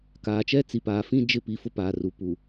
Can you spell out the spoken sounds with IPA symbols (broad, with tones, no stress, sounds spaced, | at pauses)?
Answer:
k aː˨ t͡ʃ ɛ˦ t͡s i˨ p aː˨ f ĩ˦ d͡ʒ ɪ˦˨ p i˨ f ʊ˦ p aː˨ r u˨ p u˨